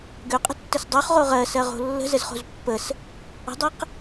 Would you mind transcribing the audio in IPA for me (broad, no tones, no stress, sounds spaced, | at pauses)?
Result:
ɡ ø qʼ ə̤ tː ə s dˤ o χ ʁ o ʁ ɜ s ɜ ʁ o̤ lː ə̤ z ə z χ o̤ z pː ə s | ə̤ dˤ ɛ q